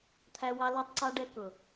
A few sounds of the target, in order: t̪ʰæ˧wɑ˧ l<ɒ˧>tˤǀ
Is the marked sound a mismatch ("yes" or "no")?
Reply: no